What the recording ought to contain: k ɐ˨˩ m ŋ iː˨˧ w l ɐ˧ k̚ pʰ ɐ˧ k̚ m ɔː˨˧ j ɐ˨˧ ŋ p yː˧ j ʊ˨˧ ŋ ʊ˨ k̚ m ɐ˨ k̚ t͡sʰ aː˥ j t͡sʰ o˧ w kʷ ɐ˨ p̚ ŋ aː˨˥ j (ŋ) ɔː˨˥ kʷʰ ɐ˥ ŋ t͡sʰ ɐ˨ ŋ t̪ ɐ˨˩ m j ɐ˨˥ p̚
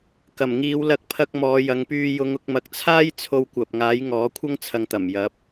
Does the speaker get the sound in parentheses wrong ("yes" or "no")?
no